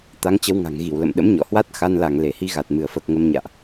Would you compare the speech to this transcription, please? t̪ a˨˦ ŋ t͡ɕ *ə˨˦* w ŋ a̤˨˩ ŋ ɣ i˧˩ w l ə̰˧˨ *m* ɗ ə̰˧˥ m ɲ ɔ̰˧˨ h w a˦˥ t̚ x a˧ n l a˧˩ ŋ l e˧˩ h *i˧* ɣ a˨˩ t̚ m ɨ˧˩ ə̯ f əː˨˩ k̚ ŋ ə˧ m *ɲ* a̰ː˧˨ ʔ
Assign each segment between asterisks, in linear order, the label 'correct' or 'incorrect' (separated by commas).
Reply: correct, correct, correct, correct